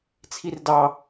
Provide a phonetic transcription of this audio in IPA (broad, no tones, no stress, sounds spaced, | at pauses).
t͡sʰ i r d ɑ